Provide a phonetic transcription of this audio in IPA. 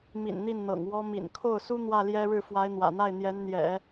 m ḭ˨˩ n n̪ i˥˩ n n̪ ɤ̰˨˩ ŋ w ɔ˥ m ḭ˨˩ n kʰ o˥˩ ʊ̯ s u˥ n̪ w ä˥˩ l j ɛ˥ ɻ ɻ̩˥˩ f w a˧˥ ɪ̯ n̪ w ä̰˨˩ n̪ a˥˩ ɪ̯ n̪ j ɛ˧˥ n n̪ j ɛ̰˨˩˦

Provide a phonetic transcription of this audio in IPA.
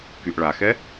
k y ʔ ɭ a x ɛ

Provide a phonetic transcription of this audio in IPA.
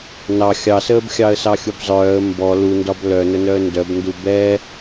n ɑ xʲ ɑ s əː b xʲ ɑ ə̯ s ɑ xʲ u b zˤ œː ə̯ m b ɔ l u n d ɒ b l œ n ə n œ ə̯ n d œ b n d u b ɛ

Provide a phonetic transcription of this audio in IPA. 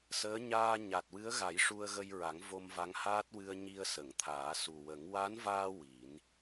s əː˧˥ ɲ aː˧ ɲ a˨˩ t̚ w ɨ˧˥ ə̯ ɣ a˨˩˦ j ʂ u˧ ə̯ ɣ ə˧ j ɹ a˨˩˦ ŋ v o˧ m v a˧˥ ŋ h aː˦˥ t̚ w ɨ˧ ə̯ ɲ i˧ ə̯ s ə˨˩˨ ŋ t̪ʰ aː˨˩˦ s u˨˩ w ə˨˩˦ ŋ w a˧˥ n v aː˧ w i˨˩˦ n

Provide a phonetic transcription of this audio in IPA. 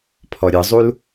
pʰ ɔ ɾʲ ɯ zˤ u l

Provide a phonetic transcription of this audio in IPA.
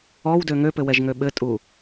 ɔ w d ø ŋ ø p ɘ w ɛ ʒ ŋ ø ɓ ɘ tʼ u

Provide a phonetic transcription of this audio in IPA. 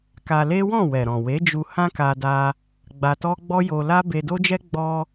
k a˧ l e˦ w ɔ̃˦˨ w ɛ˨ ɾ ɔ̃˨ w e˨˦ d͡ʒ u˧ h ã˦ k a˧ d a˧ | ɡ͡b a˧ t ɔ˦ ɡ͡b ɔ˦ j o˧ l a˦ b e˧ d o˦ d͡ʒ ɛ˦ ɡ͡b ɔ˧

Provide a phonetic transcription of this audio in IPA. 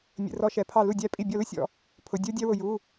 mʲ ə̰˩˧˩ r ɔ˨˦ ʃ ɛ˩˧˩ pʰ ɑ˧˩ l u˧˩ dʲ æ˧˩ pʼ i˧˩ bʲ ɔ˧˩ l ʊ˥ sʲ ɔ̰˧˩ | pʰ ʊ˩˧˩ dʲ ə˞˥ dʲ æ˥ w ʊ˧˩ j u˩˧˩

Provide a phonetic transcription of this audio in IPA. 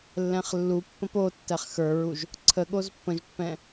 lː ɛ̃ χ lː u pː ə̃ p o tː ɛ χ x ə˞ ɹ u ʒ | ǀʰ ə ɠ o z pː ə̃ ʒ pː ɛ̃

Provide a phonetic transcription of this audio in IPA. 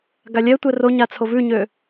ɡ a lʲ ɛ tʷ ɛ r o ɲ a t͡sʰ o v ʉ ɲ ø

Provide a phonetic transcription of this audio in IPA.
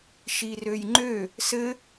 ʃ i r ø j ŋ͡ǃ ø | s ɘ

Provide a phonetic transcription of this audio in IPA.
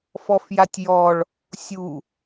f ɔ f j a tʲ j ɔ ɭ | sʲ u

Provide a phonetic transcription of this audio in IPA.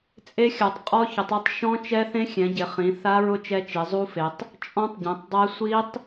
t͡sʼ e˦˥ xʲ a˩˧ tˤ qʼ ɔ˦˥ ç ʊ˩˧ tˤ i˦˥ tˤ ʃ ɔ̃˦˥ t͡ʃ ɛ˦˥ θ ẽ˦˥ xʲ ɛ̃˩˧ ɟ ɪ˩˧ χ ĩ˩˧ θ a˦˥ ɹ ʊ˦˥ t͡ʃ ɛ˦˥ t͡ʃ i˩˧ zˤ u˦˥ f e˩˧ tˤ | t͡ʃʼ ɔ̃˦˥ tˤ ɟ ẽ˩˧ tˤ dˤ ɛ˦˥ sʷ i˦˥ tˤ

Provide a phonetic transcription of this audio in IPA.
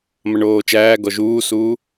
m ɐ ɳ oː t͡ʃ æː ɡ ɔ ʒ uː s uː

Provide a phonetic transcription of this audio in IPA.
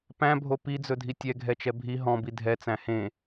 p æ̃ bʱ o p i d͡z ɵ dʱ i tʲ ɛ ɡʱ ɛ t͡ʃ ɛ bʱ i ɦ ɔ̃ b i dʱ ɛ t͡s æ̃ h ẽ

